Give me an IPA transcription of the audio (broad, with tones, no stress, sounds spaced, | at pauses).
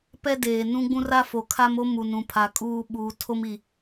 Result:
p ɛ˦ d eː˨ n ũ˦ ɡ͡b ũ˦ r a˦ f o˨ kʰ a˦ m o˦ m u˨ n ũ˨ pʰ a˨ kʼ uː˦ ɓ uː˨ tʰ o˦ m i˨